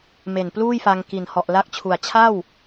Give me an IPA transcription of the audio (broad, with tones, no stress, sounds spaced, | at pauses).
m e˨˩ n p l uː˥˩ j f a˧ ŋ k i˨˩ n h ɔ˨˩ ʔ l a˦˥ k̚ t͡ɕʰ u˨˩ a̯ t͡ɕʰ a˥˩ w